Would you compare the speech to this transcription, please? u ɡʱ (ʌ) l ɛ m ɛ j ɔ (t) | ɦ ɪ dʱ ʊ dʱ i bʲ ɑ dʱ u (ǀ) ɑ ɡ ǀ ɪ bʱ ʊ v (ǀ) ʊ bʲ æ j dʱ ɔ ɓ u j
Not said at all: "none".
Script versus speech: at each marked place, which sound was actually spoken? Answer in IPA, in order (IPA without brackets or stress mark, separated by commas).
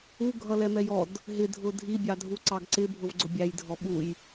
ʌ, d, ǀ, ɡ͡ǀ